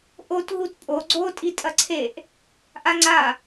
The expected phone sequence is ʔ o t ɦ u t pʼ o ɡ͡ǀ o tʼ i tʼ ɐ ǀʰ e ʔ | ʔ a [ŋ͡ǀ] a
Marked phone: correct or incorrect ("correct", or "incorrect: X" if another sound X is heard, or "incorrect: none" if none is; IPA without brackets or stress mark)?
correct